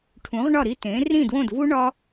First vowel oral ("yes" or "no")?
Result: no